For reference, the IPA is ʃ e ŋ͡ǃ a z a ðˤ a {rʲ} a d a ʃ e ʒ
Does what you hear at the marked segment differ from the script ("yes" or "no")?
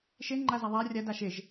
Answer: no